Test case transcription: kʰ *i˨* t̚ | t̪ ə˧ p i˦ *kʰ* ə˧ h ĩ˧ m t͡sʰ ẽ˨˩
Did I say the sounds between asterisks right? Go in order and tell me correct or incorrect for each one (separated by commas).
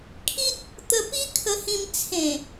incorrect, correct